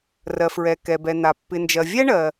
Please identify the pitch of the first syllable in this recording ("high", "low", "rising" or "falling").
low